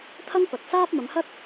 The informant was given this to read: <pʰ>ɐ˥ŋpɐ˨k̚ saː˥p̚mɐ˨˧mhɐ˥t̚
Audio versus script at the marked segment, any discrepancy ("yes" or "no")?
yes